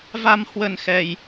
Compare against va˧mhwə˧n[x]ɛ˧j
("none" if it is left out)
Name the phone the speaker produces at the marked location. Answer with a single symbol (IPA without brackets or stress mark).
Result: x